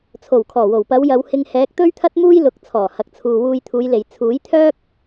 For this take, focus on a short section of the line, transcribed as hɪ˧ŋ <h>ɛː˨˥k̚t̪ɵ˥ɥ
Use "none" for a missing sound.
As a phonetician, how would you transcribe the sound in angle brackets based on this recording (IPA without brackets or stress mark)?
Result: h